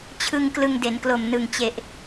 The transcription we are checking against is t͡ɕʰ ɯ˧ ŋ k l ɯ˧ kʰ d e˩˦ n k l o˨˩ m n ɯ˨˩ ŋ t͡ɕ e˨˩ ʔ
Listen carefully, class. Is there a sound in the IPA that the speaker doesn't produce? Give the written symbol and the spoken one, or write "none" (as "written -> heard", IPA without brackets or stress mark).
kʰ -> ŋ